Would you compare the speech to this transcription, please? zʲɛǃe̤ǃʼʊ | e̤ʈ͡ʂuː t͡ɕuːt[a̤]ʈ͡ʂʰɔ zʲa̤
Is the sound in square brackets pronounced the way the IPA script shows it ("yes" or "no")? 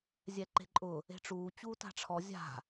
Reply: yes